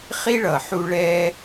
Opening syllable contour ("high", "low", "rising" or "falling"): high